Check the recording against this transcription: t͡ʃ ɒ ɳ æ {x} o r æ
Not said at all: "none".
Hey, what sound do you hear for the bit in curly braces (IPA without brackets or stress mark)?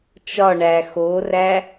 x